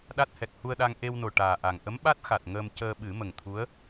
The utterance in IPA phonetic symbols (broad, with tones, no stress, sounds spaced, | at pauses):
ɗ a˦˥ t̚ h ɛ˨˩ k̚ h u˧ ə̯ ɗ a˧ ŋ ʔ e˧ w n o˨˩ ʈ aː˨˩ ʔ a˨˩ ŋ ʔ ə˧˥ m ɓ a˦˥ t̚ x a˨˩ t̚ ŋ əː˧ m c əː˧ ɓ ɨ˨˩˦ m ə˨˩ ŋ t̪ʰ u˧˥ ə̯